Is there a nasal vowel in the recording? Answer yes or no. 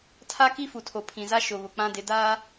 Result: yes